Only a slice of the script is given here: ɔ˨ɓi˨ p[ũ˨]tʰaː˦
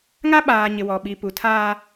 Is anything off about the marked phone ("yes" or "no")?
yes